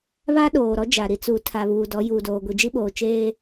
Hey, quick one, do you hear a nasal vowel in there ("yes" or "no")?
no